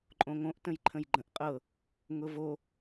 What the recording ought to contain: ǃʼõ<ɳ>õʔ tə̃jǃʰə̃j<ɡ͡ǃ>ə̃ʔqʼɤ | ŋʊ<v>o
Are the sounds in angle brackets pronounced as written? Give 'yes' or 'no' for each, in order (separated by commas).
no, yes, yes